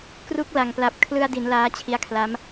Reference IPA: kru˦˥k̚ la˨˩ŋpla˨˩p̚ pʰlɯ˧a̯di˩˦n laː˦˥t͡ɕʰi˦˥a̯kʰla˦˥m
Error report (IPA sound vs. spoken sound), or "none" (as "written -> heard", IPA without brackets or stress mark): pʰ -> kʰ